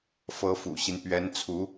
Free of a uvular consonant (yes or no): yes